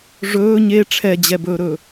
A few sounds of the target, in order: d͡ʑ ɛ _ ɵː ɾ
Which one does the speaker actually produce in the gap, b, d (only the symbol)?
b